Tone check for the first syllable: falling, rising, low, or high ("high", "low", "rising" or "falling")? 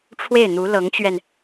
falling